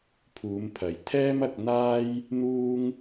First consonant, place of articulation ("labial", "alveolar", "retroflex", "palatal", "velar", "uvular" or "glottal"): labial